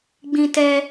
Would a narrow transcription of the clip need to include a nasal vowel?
yes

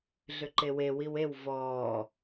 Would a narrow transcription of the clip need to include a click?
yes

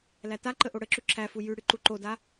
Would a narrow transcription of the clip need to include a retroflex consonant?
yes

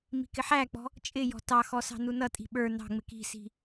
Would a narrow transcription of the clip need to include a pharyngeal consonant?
yes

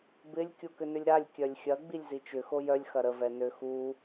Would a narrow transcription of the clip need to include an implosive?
no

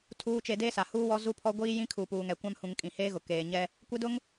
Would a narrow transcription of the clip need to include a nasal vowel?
yes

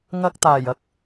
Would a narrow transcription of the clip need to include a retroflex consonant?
no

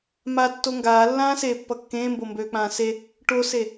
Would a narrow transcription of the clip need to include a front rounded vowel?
yes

